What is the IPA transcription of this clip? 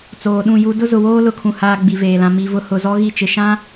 t͡soː˨ɗũ˦˨ju˦ dʊ˦ zʊ˨woː˦ lʊ˨kʰũ˨haː˨ ɡ͡bi˨veː˨lã˨ mi˨vʊ˨ hʊ˨zɔ˦ɣi˦˨ t͡ʃɪ˨ʃã˦

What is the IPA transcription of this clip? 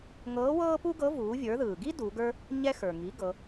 ŋɤː˧˥wɤː˥pu˥ɡɤ˧˥ vuː˩˧vʲə˞˩˧ðɯː˩ɡi˥ du˩˧ɡə˞˥ | ɲɛ˧ xə˞˩ ŋi˩˧ ɡɤ˩˧

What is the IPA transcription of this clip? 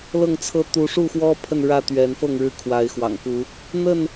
lɤ˥˨ŋt͡sʰɤ˦ t̪u˨˦ʂu˥˨xwɔ˦ pʰə˥˨nɻä˥˨t̪ɥɛ˨˦nfɤ˥˨ŋ ɻɻ̩˥˨kʰwa˨˦ɪ̯xwɑ̰˨˩ŋku˨˦ | n̪ə˥˨n

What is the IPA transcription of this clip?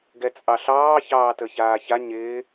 ɡɛt͡sʼɑɬɑː çɑːtəçaːça ɲɪː

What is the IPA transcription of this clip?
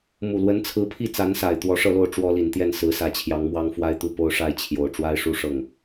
mu˨˩lwə˧˥nt͡sʰɹ̩˧˥pʰi˥˩ t͡sa˧˥nsa˨˩ɪ̯ t̪wɔ˧˥ʂɤ˥˧lo˥˩ʊ̯ ʈ͡ʂwɔ˥li˨˩nt̪jɛ˥˩n sɹ̩˧˥sä˧˥t͡ɕʰjɑ˧˥ŋmwɑ˥ŋ fwa˥ɪ̯t̪u˥˩po˥ʊ̯ʂa˥ɪ̯ t͡ɕʰjo˨˩ʊ̯ ʈ͡ʂwa˥ɪ̯ʂu˥ ʂɤ˥˩ŋ

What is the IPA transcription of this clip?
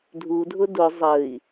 dʱu dʱʊdʊ zˤəi̯

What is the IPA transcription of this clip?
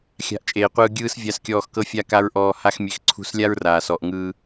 xʲa̤˦ʔt͡ʃʼeː˧qʷɯː˦ ɡʲɯː˦s vʲa˧skʲɔː˧x kɤ˦fʲa˦ka˦ɹ ʔɔː˧ha˦xmʲe˧x ǀʰṳ˦s lʲa˦ɹraː˨sɔ˨ʔŋɯː˧

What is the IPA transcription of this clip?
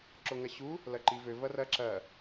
ǁoŋɐɕu | lɐǃivø vɐrɐ ǁɐ

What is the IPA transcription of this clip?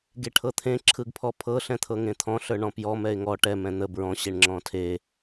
ɡeʈʰɤt̪ʰẽ ǁʰɯɡpʰɔpʰɤ ɬɛ̃t̪ʰɤŋẽt̪ʰɔ̃ ɬə˞ɳɔ̃pjɔ mɛɪ̯ŋɔ ʈɛ mɛ̃n̪ə bɹɔ̃ ɕeɳŋ͡ǁɔ̃tʰe

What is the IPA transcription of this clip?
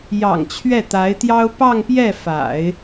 jɑ̰˨˩ŋ t͡ɕʰɥɛ˥˩t̪a˧˥ɪ̯t̪jɑ˥ʊ̯ pɑ˥˧ŋpjɛ˥˩fa̰˨˩˦ɪ̯

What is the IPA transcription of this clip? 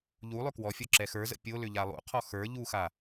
ʎulˠʏ kwɔfʲɔ ǁɛxə˞zə̰ pʲolʏ ʎalˠṵqʰɔ xə˞ ʎuxa

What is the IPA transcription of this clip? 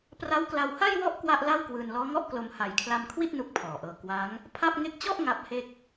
pra˦˥wkla˧wha˥˩jwɔ˥˩ʔ kwa˥˩ʔla˥˩wkwɯː˧n lɔː˦˥ŋɔ˥˩ʔklo˧m ha˨˩jkʰla˧mkʰwi˥˩t̚ nu˦˥k̚pʰɔː˨˩ʔɤː˧ kwa˦˥ŋ | pʰa˥˩p̚ ŋe˦˥k̚t͡ɕɔ˥˩ʔ ŋa˦˥p̚he˥˩k̚

